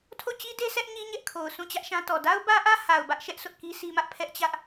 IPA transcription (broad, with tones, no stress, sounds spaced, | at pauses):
tʰ o˦˨ t͡ɕ i˦ d e˦ sʰ ɛ˦ ʔ ɲ i˦ ɲ ɛ˦ ʔ kʰ o˨ ʊ̯ sʰ ũ˦˨ t͡ɕ ä˦ ʔ ʃ ã˦ t ɔ˨ d a˦ ʊ̯ b ä˦ ʔ ä˦ h a˨ ʊ̯ b ä˦ ʔ ʃ ɛ˦ ʔ sʰ ʊ˦ ʔ k i˦ sʰ i˦ m ä˦ ʔ pʰ ɛ˦ ʔ t͡ɕ ä˦ ʔ